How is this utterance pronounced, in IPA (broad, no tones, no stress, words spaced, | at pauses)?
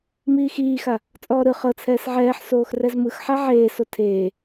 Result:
miːxiːxa | t͡sʼɔːɾɯ χɤt͡sʰɛːs ʕɛːħsoːx rɛzmɯxħa ʕeːso tʰeː